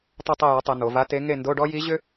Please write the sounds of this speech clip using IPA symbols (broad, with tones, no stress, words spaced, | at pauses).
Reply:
tˤo˦˨tˤe˦˨ja˩˥tˤe˩˧ n̪o˩˧va˧˥te˧˥ ŋe˦˨ndo˧˥˧ɖɔ˥ ji˧˥ ʑʏ˥